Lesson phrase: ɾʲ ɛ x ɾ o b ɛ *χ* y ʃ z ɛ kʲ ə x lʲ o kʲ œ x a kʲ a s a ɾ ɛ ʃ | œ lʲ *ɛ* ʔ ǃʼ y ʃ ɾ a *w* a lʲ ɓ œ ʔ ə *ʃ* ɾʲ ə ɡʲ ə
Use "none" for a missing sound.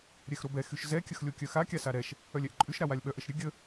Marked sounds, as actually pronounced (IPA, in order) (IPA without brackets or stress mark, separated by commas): x, ɛ, w, ʃ